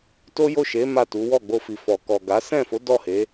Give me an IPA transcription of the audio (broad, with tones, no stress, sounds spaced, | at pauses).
t o˦ j o˦˨ ʃ e˨˦ m a˦˨ t u˨˦ w ɔ˦˨ ɡ͡b o˧ f i˨ f ɔ˨ k ɔ˨ ɡ a˨˦ s ɛ̃˦˨ f o˨˦ d ɔ˦˨ h e˨˦